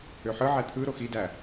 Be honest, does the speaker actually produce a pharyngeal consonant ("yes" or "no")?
yes